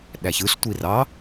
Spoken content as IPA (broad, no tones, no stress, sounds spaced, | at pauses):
ɗ æ ç ɯ ɬ tʷ i r ɑ